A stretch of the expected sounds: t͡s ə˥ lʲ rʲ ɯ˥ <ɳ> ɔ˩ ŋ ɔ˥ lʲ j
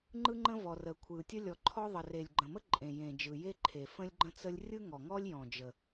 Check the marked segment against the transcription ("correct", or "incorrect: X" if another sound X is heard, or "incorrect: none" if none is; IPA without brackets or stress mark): incorrect: ŋ